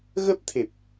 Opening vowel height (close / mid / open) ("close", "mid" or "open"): mid